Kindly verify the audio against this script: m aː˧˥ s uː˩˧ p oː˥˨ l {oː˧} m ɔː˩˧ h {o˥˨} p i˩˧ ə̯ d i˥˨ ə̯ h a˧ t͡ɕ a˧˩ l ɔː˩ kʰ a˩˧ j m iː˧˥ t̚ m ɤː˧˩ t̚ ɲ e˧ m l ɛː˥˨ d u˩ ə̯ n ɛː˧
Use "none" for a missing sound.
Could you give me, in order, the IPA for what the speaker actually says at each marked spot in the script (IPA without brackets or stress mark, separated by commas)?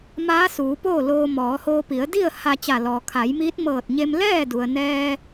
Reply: oː˧, o˧